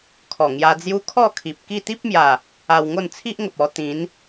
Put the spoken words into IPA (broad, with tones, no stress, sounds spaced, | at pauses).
kʰ ɔ˨˩ ŋ j a˧ d͡z j u˦ kʰ ɔ˥˧ kʰ i˨ p̚ k i˥˧ t̪ i˦ p̚ m j a˨˩ | a˧ w ŋ o˥˧ n t͡sʰ i˦ ʔ ŋ ə˨ p̚ ɔ˧ t̪ ĩ˨˦ n